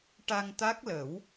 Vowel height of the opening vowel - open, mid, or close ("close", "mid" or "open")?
open